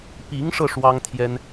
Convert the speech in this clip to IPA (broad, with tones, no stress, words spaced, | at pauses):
pi˧˥ŋʂɤ˧ ʂwɑ˥ŋt̪ʰjɛ˥n